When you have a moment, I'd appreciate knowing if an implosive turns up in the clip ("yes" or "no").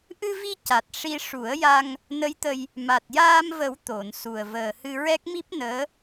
no